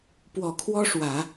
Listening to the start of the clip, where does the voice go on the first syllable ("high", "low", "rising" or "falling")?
low